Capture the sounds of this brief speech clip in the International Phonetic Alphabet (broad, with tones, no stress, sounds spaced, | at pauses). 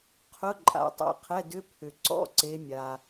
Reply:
qʰ ʊ˧˥˧ ǃʼ a̰˨˦ tˤ ɛ̰˨˦ qʰ ɛ˧˥˧ d ʏ˧˥˧ pʰ ʏ˨ ǀ ɔ̰˧˥˧ ǀ e˨˦ mʲ a˨